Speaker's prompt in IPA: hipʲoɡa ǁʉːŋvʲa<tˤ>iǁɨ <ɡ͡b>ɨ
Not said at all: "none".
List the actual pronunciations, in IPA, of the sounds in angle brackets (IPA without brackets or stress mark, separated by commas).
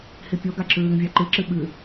ǃ, ɓ